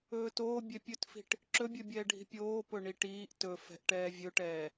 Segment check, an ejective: absent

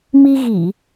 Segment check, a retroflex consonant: absent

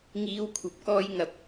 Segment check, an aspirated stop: present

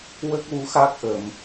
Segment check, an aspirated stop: absent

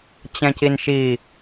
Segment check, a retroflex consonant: absent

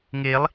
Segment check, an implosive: absent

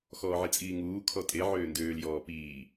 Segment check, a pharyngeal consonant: present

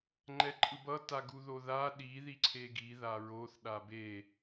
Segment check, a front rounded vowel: absent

